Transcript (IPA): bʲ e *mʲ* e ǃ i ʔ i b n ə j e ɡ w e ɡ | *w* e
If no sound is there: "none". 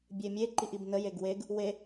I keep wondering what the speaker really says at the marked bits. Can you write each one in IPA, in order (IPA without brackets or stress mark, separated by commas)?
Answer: mʲ, w